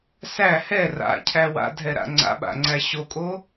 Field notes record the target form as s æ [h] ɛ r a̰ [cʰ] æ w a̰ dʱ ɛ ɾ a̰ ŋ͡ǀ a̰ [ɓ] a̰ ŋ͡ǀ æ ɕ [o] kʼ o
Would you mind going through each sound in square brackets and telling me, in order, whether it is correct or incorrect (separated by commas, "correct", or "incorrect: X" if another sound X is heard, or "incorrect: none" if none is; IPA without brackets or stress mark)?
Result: correct, correct, correct, correct